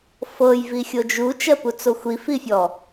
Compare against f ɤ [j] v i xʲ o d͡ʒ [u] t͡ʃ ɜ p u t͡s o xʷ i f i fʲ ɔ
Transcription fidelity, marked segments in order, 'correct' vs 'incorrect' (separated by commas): correct, correct